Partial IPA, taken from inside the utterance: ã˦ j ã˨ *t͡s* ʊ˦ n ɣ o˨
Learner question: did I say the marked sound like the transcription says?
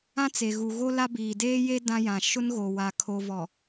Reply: no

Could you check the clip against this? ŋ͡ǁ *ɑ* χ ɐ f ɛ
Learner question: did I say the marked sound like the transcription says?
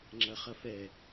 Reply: no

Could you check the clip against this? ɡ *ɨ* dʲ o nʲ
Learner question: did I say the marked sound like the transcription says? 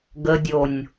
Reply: no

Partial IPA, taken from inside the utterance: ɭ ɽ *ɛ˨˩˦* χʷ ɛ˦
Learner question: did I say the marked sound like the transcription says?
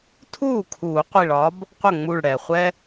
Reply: no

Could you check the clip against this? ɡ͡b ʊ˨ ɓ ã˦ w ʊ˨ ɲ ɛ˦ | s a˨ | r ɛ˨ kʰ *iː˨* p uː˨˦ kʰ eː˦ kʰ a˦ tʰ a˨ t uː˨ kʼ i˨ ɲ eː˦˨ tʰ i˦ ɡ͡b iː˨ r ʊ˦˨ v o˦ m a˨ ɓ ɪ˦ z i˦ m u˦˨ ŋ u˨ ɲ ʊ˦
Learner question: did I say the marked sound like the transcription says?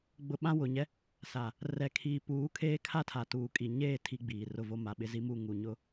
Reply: yes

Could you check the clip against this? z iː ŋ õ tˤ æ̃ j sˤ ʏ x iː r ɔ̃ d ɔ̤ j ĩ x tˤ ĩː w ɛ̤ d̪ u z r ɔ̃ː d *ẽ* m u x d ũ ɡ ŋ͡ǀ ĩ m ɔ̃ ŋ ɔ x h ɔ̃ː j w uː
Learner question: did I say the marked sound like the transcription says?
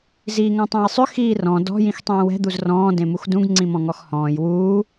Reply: yes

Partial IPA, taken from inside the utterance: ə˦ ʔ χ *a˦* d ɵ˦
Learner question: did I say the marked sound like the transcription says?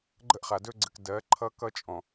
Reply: no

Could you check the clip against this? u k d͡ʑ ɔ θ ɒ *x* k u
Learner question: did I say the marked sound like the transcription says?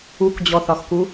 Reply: yes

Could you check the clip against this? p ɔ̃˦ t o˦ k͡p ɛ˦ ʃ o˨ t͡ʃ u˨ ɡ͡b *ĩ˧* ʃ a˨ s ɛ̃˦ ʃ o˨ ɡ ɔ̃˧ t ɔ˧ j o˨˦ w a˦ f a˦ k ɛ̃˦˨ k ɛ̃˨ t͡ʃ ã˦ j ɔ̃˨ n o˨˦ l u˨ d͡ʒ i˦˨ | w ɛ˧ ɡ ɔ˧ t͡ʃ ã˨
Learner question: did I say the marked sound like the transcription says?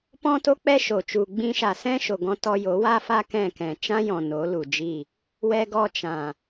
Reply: yes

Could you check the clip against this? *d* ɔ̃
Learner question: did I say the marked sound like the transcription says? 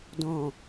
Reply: yes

